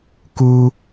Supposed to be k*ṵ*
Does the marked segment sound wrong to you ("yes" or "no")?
yes